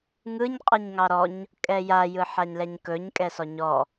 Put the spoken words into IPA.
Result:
ŋ ɯ ɲ qʼ ɯ ɲ ŋ ɑ ɾ ɔ ɲ | kʼ ɛ j a j ɯ ħ a ɲ l ɛ ɲ k ɵ ɲ kʼ ɛ s ɔ ɲ ɔ

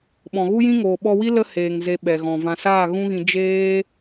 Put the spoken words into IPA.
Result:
ɓ ɔ̃˨ ɣ u˦ j ĩ˦ ŋ oː˨ ɓ ɔ˧ w i˦ l ə˦ h eː˨ ŋ z e˧ ɓ ɛ˨ ɣ ɔ̃˨ v ã˨ s aː˦˨ ɣ ũ˦ ɣ ĩ˧ d͡ʒ eː˦

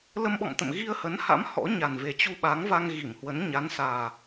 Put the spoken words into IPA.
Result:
l ə˧ m ɓ ɔ̰˧˨ m t̪ ə̰˧˨ m ɣ i˧ ə̯ h ə˨˦ n h a̰˧˥ m h ɔ̰˧˥ ɲ a˨˩ n v e˨˩ t͡ɕ u˧ ɓ a˨˦ ŋ v a˧ ŋ ɣ i˧˩ m h w ə˨˦ n ɲ a˨˦ n s aː˨˩

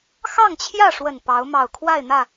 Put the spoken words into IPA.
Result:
x ɑ˥˨ ŋ t͡ɕʰ j ä˥˨ ʂ w ə˨˩ n p ɑ˨˦ ʊ̯ m ɑ˨˩ ʊ̯ kʰ w a˥˨ ɪ̯ n̪ ä˥˨

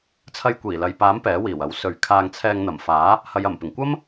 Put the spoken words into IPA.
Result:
t͡sʰ ɐ˧ j kʷ iː˨˩ l ɐ˨ j p aː˨˥ m p ɛː˨˥ w iː˨˩ w ɐ˨˥ w s ɵ˨˧ ɥ kʰ aː˧ ŋ t͡sʰ ɛː˧ ŋ n̪ ɐ˨˩ m f aː˨˥ | h ɐ˨˧ j ɐ˨˩ m p ɪ˨˩ ŋ kʷ ɐ˥ m

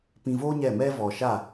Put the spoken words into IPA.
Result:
p ĩ˧ v oː˦ ɲ ɛ˦˨ m ɛ˦ v ɔ˨ ʃ a˦˨

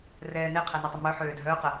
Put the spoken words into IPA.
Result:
r ɛː n e qʰ ɛ n ɛ tˤ ə m œ ħ øː dʱ œː q ə

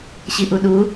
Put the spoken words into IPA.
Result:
ɕ i ʔ u ɗ u

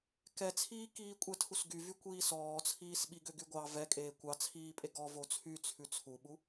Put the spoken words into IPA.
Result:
k ɛ t͡sʰ iː k iː kʷʼ ɛ tʰ u s ɡ y v y kʷ iː s ɔː t͡sʰ iː s ɓ i ɡ ø ɡ y ɡʷ ɑ v ɛ kʼ eː kʷ ɑ t͡sʰ iː pʼ e ɡ ɔ v o t͡sʰ y t͡sʰ ʉ t͡sʰ u ɓ u

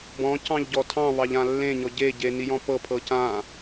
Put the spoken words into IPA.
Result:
b ɔ̃ c ɑ̃ ʎ ɟ ɔ tʰ ɑ̃ β ɑ ʎ ã lː ẽ ɲ ɔ ɟ e ɟ e n i j ɔ̃ p ɤ pʰ ɤ c ã

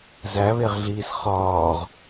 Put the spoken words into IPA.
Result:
z æ β e ʁ ɮ iː s χ ɒː ʁ

